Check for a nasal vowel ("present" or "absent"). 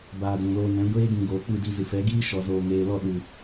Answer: present